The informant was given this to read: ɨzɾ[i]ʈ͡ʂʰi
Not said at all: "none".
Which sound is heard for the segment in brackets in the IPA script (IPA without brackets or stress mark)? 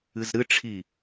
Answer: ɨ